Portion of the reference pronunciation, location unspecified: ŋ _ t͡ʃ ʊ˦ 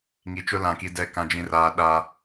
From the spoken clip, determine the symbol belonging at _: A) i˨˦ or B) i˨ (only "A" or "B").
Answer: B